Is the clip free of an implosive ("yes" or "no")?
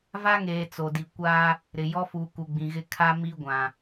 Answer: yes